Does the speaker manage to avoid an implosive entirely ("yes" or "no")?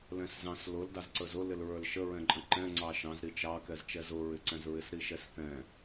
yes